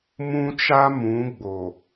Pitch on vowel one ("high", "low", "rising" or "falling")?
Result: high